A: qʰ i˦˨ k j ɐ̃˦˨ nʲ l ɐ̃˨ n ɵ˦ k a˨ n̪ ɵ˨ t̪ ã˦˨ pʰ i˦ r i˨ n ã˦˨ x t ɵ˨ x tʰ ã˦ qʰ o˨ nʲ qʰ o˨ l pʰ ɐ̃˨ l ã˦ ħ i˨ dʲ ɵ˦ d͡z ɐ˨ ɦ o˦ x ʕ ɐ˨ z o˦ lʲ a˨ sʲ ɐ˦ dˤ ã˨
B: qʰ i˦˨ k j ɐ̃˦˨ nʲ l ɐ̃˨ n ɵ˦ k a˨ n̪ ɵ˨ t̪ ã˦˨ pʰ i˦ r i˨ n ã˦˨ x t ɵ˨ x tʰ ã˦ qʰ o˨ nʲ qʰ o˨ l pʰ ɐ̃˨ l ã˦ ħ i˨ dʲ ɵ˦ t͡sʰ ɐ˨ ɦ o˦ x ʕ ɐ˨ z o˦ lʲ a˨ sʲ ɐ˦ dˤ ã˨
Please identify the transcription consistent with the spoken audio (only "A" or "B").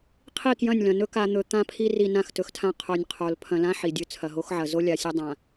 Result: B